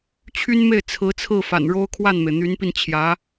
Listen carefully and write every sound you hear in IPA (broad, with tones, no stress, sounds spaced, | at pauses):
t͡ɕʰ y˥ n m e˥˩ ɪ̯ t͡sʰ ɹ̩˧˥ t͡sʰ ɹ̩˥˩ f a̰˨˩ n ɻ o˥ ʊ̯ kʰ w a˥˩ n m e˩ ɪ̯ n̪ y˧˥ n p i˧ n t͡ɕʰ j ä˧˥